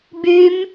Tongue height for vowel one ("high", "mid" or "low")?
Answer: high